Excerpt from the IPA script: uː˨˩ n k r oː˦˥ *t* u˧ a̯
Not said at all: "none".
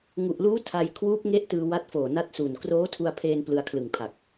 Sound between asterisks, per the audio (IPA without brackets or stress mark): tʰ